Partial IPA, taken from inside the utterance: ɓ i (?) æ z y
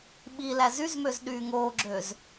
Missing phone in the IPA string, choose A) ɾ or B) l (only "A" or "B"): B